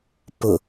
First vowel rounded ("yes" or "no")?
yes